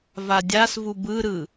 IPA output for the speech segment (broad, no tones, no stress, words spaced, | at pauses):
vadʲasvu bɯɾɯ